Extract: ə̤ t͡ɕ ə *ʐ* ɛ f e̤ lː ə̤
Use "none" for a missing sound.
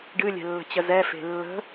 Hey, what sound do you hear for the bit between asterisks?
z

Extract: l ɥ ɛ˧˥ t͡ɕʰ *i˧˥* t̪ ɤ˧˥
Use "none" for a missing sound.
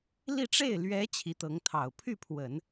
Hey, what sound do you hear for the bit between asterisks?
i˧˥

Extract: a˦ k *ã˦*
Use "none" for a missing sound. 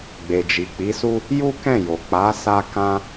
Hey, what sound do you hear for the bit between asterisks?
ã˦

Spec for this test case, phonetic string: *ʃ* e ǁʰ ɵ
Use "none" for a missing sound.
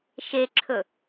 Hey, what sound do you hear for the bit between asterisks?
ʃ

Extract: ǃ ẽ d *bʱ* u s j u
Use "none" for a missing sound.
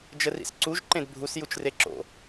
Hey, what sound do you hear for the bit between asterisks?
bʱ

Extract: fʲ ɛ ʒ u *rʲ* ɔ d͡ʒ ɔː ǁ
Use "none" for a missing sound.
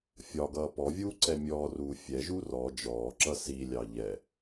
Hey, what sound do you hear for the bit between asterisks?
r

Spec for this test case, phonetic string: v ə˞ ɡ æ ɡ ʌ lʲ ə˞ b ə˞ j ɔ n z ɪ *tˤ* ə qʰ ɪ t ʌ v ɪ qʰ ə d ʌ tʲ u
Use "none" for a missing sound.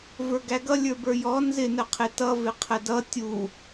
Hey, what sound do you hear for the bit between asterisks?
n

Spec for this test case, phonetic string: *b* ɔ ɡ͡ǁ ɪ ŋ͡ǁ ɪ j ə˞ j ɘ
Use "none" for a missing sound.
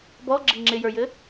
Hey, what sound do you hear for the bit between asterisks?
b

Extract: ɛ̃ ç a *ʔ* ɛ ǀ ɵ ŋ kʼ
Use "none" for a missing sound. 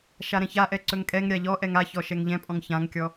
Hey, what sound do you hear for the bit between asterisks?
ʔ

